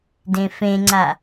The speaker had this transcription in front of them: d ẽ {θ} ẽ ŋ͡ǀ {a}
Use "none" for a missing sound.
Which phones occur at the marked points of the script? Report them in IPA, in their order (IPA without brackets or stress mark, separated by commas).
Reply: f, a